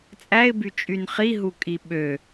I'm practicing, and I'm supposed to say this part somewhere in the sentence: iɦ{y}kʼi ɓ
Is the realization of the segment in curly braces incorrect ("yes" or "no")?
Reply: yes